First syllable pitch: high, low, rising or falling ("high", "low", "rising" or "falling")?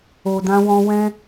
low